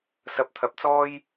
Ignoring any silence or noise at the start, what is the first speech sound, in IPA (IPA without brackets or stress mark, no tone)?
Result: s